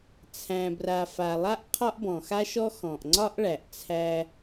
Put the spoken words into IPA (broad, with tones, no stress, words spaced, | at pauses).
t͡sʰæ̃˩bra˩ fa˩lˠa˥ʔ qʰɒ˥ʔbɔ̃˩xa˥ʃɔ˥ xɔ̃˩ʔŋ͡ǀɒ˥ʔɭæ˩ʔ t͡sʰæ˥